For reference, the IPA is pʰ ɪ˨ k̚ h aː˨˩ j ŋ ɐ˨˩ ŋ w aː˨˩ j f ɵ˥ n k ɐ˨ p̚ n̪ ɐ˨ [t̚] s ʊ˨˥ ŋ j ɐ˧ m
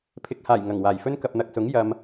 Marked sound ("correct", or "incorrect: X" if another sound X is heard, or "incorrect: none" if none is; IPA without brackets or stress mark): incorrect: k̚